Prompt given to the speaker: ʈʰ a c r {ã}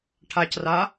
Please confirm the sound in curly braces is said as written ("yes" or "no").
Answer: no